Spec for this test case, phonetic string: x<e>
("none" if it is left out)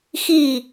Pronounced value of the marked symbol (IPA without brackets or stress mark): i